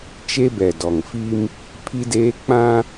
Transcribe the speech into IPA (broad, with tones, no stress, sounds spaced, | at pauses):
t͡ʃ e˦ b ɛ˨ d ɔ˨ ŋ f i˦ m | pʰ i˦ d eː˦ k͡p ã˦